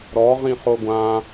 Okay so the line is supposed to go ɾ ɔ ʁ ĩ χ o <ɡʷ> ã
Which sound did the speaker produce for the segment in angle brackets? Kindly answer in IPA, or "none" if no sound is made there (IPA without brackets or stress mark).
ɡʷ